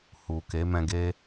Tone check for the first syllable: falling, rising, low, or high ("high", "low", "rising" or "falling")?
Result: low